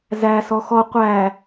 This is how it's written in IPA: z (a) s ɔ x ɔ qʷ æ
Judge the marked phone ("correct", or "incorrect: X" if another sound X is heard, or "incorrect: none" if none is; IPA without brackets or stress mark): incorrect: æ